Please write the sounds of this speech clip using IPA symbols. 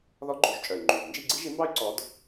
ð ɔ˧˥ ɡ͡ǃ u˨˩˦ ʒ t͡ʃʼ œ˩ y̯ ŋ͡ǃ y˩ v n d͡ʒ i˥˨ ɡ͡ǀ i˥ ʒ i˧˥ m b ɑ˥ y̯ ǀ ɔ˧˥ d

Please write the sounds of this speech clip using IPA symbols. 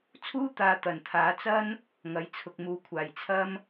t͡sʰ uː˥ t̪ aː˨˧ t̪ ɐ˨˩ n t̪ʰ aː˨˥ t͡s ɐ˥ n | ŋ ɐ˨˥ j t͡sʰ ʊ˨ k̚ m uː˨˧ kʷʰ aː˨˩ j t͡sʰ ɐ˥ m

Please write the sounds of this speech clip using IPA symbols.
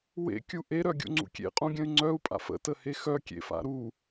w ḛ kʲ u ʔ e ɾ œ ɡʲ ṵ ŋ͡ǀ ṵ kʲ ḛ qʼ ũ ɡʲ ə̃ y̯ ŋ͡ǀ œ u̯ pʼ a̰ f ə̰ t ə h e x œ kʲ ḛ f a̰ ɾ u

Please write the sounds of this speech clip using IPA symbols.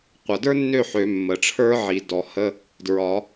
qʷ ʌ˩ d ə˞˥ nː ø˥˩ ħ ø˨˩˦ mː ə˩ ʈ͡ʂʰ ə˞˥ ʕ i˨˩˦ d ɔ˨˩˦ h ə˧˥˧ | d ɹ ɒ˨˩˦

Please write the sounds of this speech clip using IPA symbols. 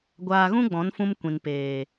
ɡʷ aː˧ ɣ ũ˦ ɡ͡b ɔ̃˨˦ n f ũ˧ m kʷ ĩ˨ n p eː˨

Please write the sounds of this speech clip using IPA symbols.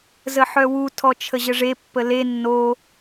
z ə ħ œ w u tʰ ɔ t͡ʃʰ ə ʑ ə ʐ e pː ə l e nː o

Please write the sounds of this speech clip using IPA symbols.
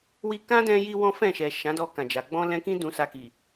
w i˧ k ã˦ d ɛ̃˧ j i˧ w ɔ̃˦ f ɛ̃˦˨ ʃ ɛ˨ ʃ ã˨˦ d ɔ˧ k ã˨ d͡ʒ a˨ ɡ͡b ɔ̃˧ l ɛ̃˧ k ĩ˦ d ũ˧ s a˧ k i˨

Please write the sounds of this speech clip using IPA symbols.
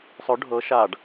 sˤ ʊ ɖʱ ɤ ʃ a ɖ

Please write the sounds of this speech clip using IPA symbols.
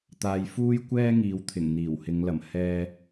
t̪ aː˧ j f uː˥ j kʷ ɛː˥ ŋ iː˨˧ w t̪ʰ ɪ˨˩ ŋ n̪ iː˨˩ w h ɪ˨˧ ŋ l ɐ˨˩ m h ɛː˥

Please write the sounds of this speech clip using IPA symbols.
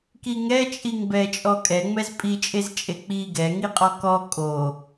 k i ŋ ɛ t͡ʃʼ i ŋ b ɛ t͡ʃʼ ɔ kʼ ɛ ŋ͡m ɛ z pʼ i t͡ʃʼ e z t͡ʃʼ e k͡p i ɡ ɛ ŋ i qʼ ɔ k ɔ kʼ o

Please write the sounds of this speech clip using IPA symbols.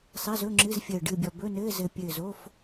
sˤ ɛ˧˥˧ z ɵ˧˥˧ ŋ͡ǁ ɨ˧˥˧ z fʲ əː˧˩ ɖ ɨ˧˩ bʲ ɔ˧˩ b ɵ˧˥˧ n ɘː˧˥˧ z ɘ˧˩ pʲ ɘː˧˩ z o˧˥˧ f

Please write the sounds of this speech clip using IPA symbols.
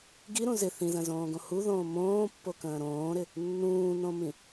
ɡ i ɾ ũ z ɪ θ ĩ z ə̃ z õː ɡ õ h u ð õː m õː pː o k ə̃ː ɾ õː ɾ ɪ | nː ũː n õ m ĩ

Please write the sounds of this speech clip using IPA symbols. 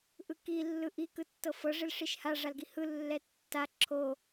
ʔ ɯ k i lː ɯ ʔ i k ɯ tː ɤ f ɤ ʐ i l ʂ i ʃ h a ʐ a l ɡ i h ɯ lː ɛ tː a ǁʰ o

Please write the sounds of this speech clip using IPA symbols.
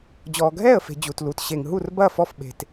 d͡ʑ ɔː˨ ɡʱ ɛː˥˩ ə̯ f e̤˨ d͡ʑ u˨ t l uː˨ t ɕ e˨ ŋ ɦ u˥˩ r b ɐː˥˩ f ɔ˥˩ f ɓ e̤˨ t

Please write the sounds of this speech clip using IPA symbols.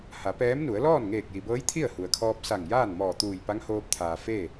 h a˩˧ p ɛː˧˥ m n u˩˧ ə̯ l ɔː˥˨ n ŋ eː˧˩ k̚ j i˩ b ɤː˧˥ j t̪ʰ i˥˨ ə̯ h u˩ ə̯ kʰ ɔː˧ p̚ s a˧˩ ŋ j aː˥˨ n m ɔː˧˩ t̪ uː˧˩ j p a˧˥ ŋ h oː˧ p̚ t̪ʰ aː˩ f e˥˨

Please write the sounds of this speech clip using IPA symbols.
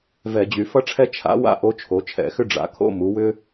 v ɛ˧˩˧ d͡ʑ y˩˧ f ʌ˥ ʈ͡ʂʰ ɛ˥ t͡ʃʰ a̰˧˥ w a̰˥ ʔ o˧˥ t͡ʃʰ o˩˧ t͡ʃʰ ɛ̰˧˩˧ x ʏ˥ ɖ͡ʐ a̰˩˧ kʰ o̰˧˥˧ m u˩˧ w ʏ˥

